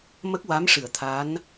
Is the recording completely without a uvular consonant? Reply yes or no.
yes